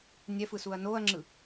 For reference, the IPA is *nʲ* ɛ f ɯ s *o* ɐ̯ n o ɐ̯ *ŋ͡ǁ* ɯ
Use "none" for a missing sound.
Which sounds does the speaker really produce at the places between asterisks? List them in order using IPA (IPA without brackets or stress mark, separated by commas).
nʲ, u, ŋ͡ǁ